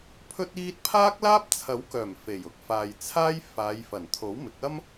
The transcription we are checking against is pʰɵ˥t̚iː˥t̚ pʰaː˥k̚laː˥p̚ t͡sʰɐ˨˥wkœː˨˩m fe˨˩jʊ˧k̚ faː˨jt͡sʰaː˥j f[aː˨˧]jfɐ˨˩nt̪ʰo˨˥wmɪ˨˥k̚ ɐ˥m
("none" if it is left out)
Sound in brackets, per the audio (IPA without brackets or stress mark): aː˨˧